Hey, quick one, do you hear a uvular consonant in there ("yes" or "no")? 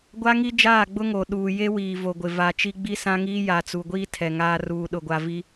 no